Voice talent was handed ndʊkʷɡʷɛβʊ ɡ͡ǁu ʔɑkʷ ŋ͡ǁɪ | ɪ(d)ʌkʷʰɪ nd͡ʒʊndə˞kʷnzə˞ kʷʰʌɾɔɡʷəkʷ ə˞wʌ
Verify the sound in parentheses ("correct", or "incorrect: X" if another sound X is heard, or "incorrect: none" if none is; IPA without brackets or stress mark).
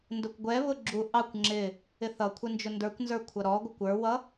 incorrect: θ